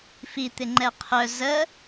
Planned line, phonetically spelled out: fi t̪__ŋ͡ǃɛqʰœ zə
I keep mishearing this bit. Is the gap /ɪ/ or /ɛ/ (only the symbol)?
ɪ